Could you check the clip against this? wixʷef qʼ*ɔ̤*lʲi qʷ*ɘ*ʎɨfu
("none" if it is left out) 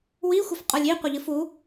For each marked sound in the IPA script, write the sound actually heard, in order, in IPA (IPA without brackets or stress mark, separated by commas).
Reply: ɔ, ɘ